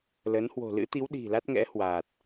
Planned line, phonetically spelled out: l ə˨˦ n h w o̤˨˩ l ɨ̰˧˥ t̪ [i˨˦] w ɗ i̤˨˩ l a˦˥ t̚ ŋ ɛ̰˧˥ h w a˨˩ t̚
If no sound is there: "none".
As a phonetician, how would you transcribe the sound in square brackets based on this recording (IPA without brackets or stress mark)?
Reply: i˨˦